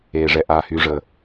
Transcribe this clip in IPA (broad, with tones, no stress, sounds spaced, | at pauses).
eː˩ ʐ ɛ˩ ʔ aː˩ h yː˩ ʐ əː˩